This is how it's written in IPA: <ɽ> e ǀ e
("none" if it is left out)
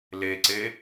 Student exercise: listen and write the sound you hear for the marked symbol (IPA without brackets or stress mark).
l